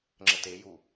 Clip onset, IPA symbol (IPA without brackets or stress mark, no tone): ŋ͡ǁ